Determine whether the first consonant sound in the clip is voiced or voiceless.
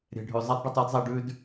voiced